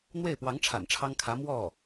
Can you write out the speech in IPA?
n̪ w e˥˩ ɪ̯ p w ɑ˧˥ ŋ ʈ͡ʂʰ a̰˨˩ n ʈ͡ʂʰ ɑ˥ ŋ kʰ ä˧˥ m w ɔ˥˩

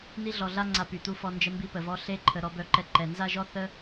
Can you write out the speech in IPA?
n i˥ ɮ ɔ˧ ɮ a˥ ŋ͡ǀ a˧ p y˩ t̪ u˧ f ɔ˧ n d͡ʒ ə˧ m b i˧ p ə˩ v ɔ˧ ɬ e˥ ǃʰ ə˧ ɾ ɔ˧ b œ˧ ǃ ɛ˧ ǃ ɛ˩ n z a˥ ʒ ɔ˥ θ ə˥

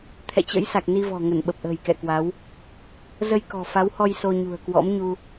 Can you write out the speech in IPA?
t̪ʰ ɛ̰˧˨ t͡ɕ ə̰˧˥ j s a˨˩ k̚ n i˧ v ɔ̤˨˩ ŋ ə˧˩ n ɓ ə˨˩ p̚ ʔ ə̤ː˨˩ j k ɛ̰˧˨ k w a˨˦ w | z ə˧ j k ɔ̤˨˩ f a˨˦ w h ɔ˧ j s o˧ ɲ ṳ˨˩ ə̯ k w ɔ̰˧˥ m ɲ u˧

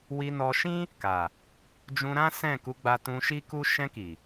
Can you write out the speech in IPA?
w i˧ n ɔ˧ ʃ ĩ˦ | k a˨ | d͡ʒ ũ˧ ɾ ã˦ s ɛ̃˦˨ k u˨˦ ɡ͡b a˧ t ũ˧ ʃ i˦ k u˦ ʃ ɛ̃˧ k i˨

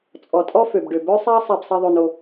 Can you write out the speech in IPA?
t͡sʼ ɔ˩ tʼ ɔ˥ f ø˩ b ɖ ø˩ b œ˥ sˤ ɛ˥ ɐ̯ sˤ ɛ˧ b sˤ i˧ ðˤ ø˧ n o˧

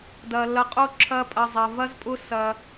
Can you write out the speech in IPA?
d ɐ˧ l ɐ˧ qʼ o˦ ǁʰ ɐ˦ pʼ ɐ˧ zˤ ɐ˧ v ɐ˦ z pʼ ʊ˦ s ɐ˧

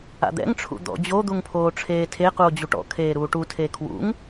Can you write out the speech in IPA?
a̰ d̪ ɛ̰ ŋ ʈ͡ʂʰ ṵ d̪ ɔ̰ d͡ʑ o d̪ u ŋ pʰ oː ʈ͡ʂʰ eː tʰ e q u o̯ d͡ʑ u ʈ ɔ̰ kʰ eː ɾ uː ʈ u tʰ e kʰ w ṵ ŋ

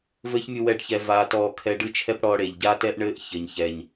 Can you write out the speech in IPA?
v ɘː˦ ç mʲ u˧ w ɛ˧ ɖ ç ɛ˦ v aː˧ t ɔː˧ kʰ ɛ˧ ɖ ɨ˦˨ t͡ʃʰ ɛ˦ p ɽ ɔː˧ ɽ e˨ ʎ ɟ a˦ t ɛ˦ ʔ ɳ ɘː˦ ʔ ç ɘ˨ ɲ ç ɛ˨ ɲ

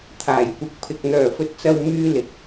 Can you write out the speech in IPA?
t̪ʰ aː˨˩ j kʷ ɪ˨˥ k̚ pʰ ɪ˨ k̚ n̪ œː˨˩ f ɵ˨ t̚ t͡s ɐ˨ w m yː˧ l ɪ˨˥ k̚

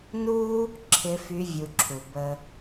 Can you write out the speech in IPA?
n u˥ | ǁʰ ɪ˧˥ f y˧˥ vʲ u˧ ǁʰ u˩ b ə˥

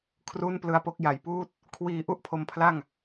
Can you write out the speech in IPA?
kʰ r uː˥˩ n p l ɯ˧ a̯ p o˥˩ k̚ j a˨˩ j p uː˥˩ t̚ | kʰ w iː˧ ʔ u˥˩ ʔ pʰ o˧ m pʰ l a˥˩ ŋ

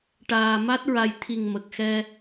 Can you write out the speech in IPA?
ʈ aː˨˩ m a˦˥ t̚ ɹ a˧ j t̪ʰ i˨˩ ŋ m ə˨˩ k̚ x ɛ˧

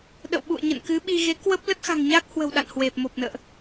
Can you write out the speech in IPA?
ɗ ə̰˧˨ w ɓ ṵ˧˨ ə̯ ɲ ə̰˧˨ n k ɨ˨˦ ɓ i˧ ɣ e˨˦ k w ə˦˥ p̚ l ə˦˥ t̚ x a̤˨˩ ŋ ɲ aː˦˥ k̚ h w ə̤˨˩ w ɗ a̰˧˨ n h w e˨˩ p̚ m o˨˩ p̚ n ə̰ː˧˨ ʔ

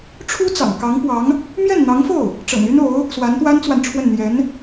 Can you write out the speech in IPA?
ʈ͡ʂʰ u˥ t͡s ɑ̰˨˩ ŋ k ɑ˧˥ ŋ p w ɑ˧˥ ŋ | m j ɛ˥˩ n n̪ ɑ˧˥ ŋ f o˥˩ ʊ̯ | ʈ͡ʂ ɤ̰˨˩ ŋ y˥ n o˧˥ ʊ̯ | s w a˧˥ n t̪ w a˥ n t͡s w a˨ n ʈ͡ʂʰ w ə˥˩ n n̪ j ɛ˧˥ n

